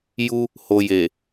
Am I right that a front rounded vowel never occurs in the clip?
yes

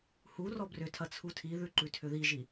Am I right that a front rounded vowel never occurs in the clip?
no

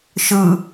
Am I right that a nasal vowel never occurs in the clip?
yes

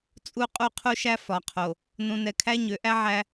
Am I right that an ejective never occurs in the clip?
no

